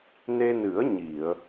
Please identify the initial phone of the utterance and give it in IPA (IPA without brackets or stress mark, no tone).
n